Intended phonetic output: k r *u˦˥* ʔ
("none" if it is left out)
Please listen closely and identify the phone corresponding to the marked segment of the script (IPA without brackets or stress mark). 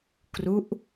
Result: u˦˥